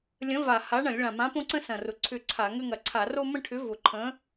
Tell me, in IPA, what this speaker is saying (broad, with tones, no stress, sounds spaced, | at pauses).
lʲ ə̃˨˥ v a˨˩ h a˨˥ ɳ ɐ̃˧˩˧ lʲ ɭ ã˨˩ m ã˨˥ p õ˦ ǀ ə̃˦ s ɐ̃˨˩ r ʊ˨˩ ǀʰ ʏ˦˨ ǀʰ a˧˩˧ ŋ ʏ˦ ŋ ɐ˨˩ ǀʰ a˧˩˧ r o˦ m ə̃˦ ʈʰ ʏ˨˥ v ʊ˨˩ ǃʰ ə̃˨˥